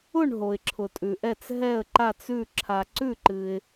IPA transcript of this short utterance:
ʊ˦˨ ɳ ɦ o˨ ɪ̯ ǁʰ ʊ˨ tʼ ʉ˨ ʔ ɛ˦˨ t͡s ɦ ɛ˦˨ ə̯ ǃ a˦˨ t͡s ʉ˦˨ ǁʰ a˨ ǀ ʉ˦˨ ǃ ɨ˨ ɪ̯

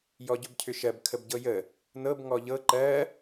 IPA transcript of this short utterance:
j ɔ ɟ ɵ b cʰ ʏ ʃ ɜ b kʰ ə b ɟ ɤ j ə | n ɤ b ŋ ɔ ʎ ɤ ǃ ɜ

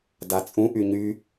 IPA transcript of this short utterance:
d a t͡sʼ ũ ʔ y ɲ y

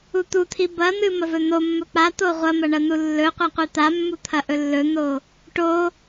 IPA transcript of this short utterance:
u t̪ u t̪ʰ i b ɐ n̪ ɨ m ɐ v ɵ n̪ o mː ɵ k͡p a t̪ o ʁʷ ɐ m ɐ ɳ ɐ n̪ u lː ɵ qʷ a qʷ i t̪ a mː u t̪ʰ ɐ ʔ ɵ lː ɵ n̪ o | ʈ o

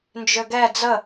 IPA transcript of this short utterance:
n d͡ʒ ø ɡ ɛ d͡z ə

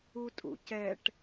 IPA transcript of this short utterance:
u tʼ ṵ c ɛ ʈ

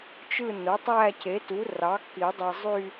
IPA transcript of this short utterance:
t͡ʃ ɯ˥˧ n o˩˥ tˤ æ˥˧ c e˩˥ t u˩˥ r ɑ˩˥ k i˨˩˦ dˤ i˨ zˤ y˥˧

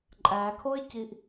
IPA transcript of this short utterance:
ǃʼ æ kʰ o ɪ̯ c i ʔ

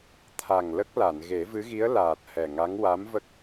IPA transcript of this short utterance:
t̪ʰ a˨˩ ŋ l ə˦˥ k̚ l a˨˩˨ n ɣ e˨˩˦ v ɨ˧˥ ɣ i˧˥ ə̯ l aː˨˩ t̚ h ɛ˨˩ ŋ a˧˥ ŋ w a˧˥ m v ə˦˥ k̚

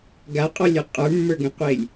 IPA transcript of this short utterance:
ɡ a qʼ ɔ lʲ ɔ qʼ ə˞ mː ə˞ ɡ ɛ̃ qʷ e lʲ

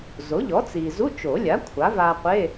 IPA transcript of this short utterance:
z o˩˥ ʎ ɔ˩˥ t͡s i˩ z u˧˥˧ t͡ʃ o˨˩˦ lʲ a˩˥ kʷʰ a˩˥ v a˧ qʷ e˧˥˧

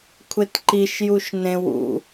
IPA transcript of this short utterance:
kʷʰ e t ǃ i ʃ j u ʃ n ẽ w ṵ

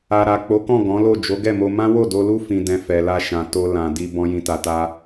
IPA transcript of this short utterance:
a˨ ɾ a˨ k͡p o˨˦ k ɔ̃˦˨ ɡ ɔ̃˨˦ l o˦˨ d͡ʒ o˨˦ ɡ ɛ˦˨ m o˧ m ã˦ w o˦˨ d o˧ l u˦ f ĩ˧ d ɛ̃˧ f ɛ˨ l a˧ ʃ ã˨ t o˧ l ã˨ d i˧ b ɔ̃˦ j ĩ˧ t a˧ t a˦

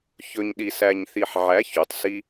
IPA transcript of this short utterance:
ç ɵ˧ ɲ ɗ i˨ s æ˨ ɲ θ i˨ ħ ʕ æ˨˦ ç u˨˦ tˤ s i˦

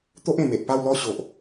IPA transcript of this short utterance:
t̪ o˦ ʔ ẽ˨˩ m e˨ ʔ p a˥˧ w l ɔ˥˧ ɕ o˨ ʔ

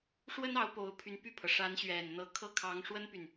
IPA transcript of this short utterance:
ʂ w ə˥ n ɑ˧˥ ʊ̯ p o˧˥ ʊ̯ pʰ y˧˥ n p y˥˩ pʰ ɤ˩ ʂ a˧˥ n ɕ ɥ ɛ˨˩ n n̪ ɤ˧˥ kʰ ɤ˥˩ kʰ ɑ˧˥ ŋ ʂ w ə˥ n p y˨ n

